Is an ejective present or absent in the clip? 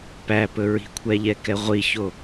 absent